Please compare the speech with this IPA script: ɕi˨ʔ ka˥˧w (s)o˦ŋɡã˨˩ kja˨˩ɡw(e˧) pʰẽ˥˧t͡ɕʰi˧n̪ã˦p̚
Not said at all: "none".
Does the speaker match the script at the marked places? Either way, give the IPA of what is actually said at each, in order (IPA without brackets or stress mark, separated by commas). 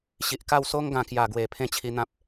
s, e˨˩